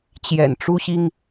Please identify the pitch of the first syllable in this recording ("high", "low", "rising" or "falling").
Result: low